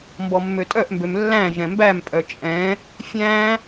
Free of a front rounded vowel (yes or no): no